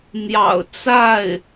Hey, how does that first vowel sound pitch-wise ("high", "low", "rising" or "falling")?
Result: low